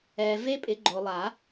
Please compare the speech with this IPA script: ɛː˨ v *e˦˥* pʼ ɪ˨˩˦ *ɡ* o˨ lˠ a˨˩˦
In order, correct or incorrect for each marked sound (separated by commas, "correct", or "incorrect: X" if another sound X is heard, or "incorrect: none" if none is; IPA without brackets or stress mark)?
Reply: correct, incorrect: ɡ͡ǃ